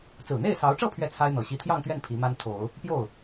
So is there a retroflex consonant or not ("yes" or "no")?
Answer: yes